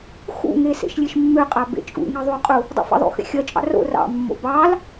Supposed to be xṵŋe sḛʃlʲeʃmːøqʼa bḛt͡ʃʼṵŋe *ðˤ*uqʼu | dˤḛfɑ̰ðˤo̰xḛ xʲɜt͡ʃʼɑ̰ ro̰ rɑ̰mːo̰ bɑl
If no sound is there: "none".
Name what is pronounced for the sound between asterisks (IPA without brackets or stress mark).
ðˤ